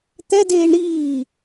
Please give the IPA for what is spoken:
t̪ɛdeːɳ ɾiː

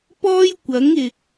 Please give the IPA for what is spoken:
pɔː˥jkʷɐ˨˥ŋ ɪ˨k̚

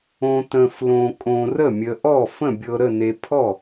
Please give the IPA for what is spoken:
õ˧tə̃˧ flõ˧ kʼõ˧rə˥˨mʲə˧ʔɔ˥˨ fə̃˥˨bʲɤ˧ɾə˥˨ ne˧pʰɔ˥˨

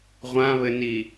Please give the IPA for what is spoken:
ʁʷãβɘni

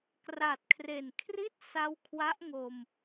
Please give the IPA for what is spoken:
kra˨˩t̚kʰre˨˩nkʰri˥˩t̚ sa˦˥wkʰwa˦˥ʔŋo˧m

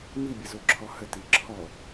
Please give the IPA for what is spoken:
mibʲəzoǁʰɔ həti ǁʰɔ

